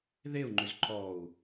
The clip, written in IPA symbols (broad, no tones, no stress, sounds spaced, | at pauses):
ð e u̯ ŋ͡ǃ ʏ z ǃ ɔ u̯